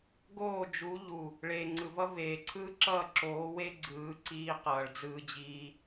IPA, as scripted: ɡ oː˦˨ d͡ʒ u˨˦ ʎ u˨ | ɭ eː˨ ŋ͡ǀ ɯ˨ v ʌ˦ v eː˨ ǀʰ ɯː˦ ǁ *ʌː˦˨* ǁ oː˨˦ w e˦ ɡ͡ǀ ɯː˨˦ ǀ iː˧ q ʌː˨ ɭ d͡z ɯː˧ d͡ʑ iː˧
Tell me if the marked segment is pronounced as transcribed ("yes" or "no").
yes